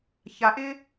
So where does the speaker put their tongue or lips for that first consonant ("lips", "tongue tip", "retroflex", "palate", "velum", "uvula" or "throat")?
palate